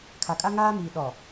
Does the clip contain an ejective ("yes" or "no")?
yes